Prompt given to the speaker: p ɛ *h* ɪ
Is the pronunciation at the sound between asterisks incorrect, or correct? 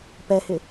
correct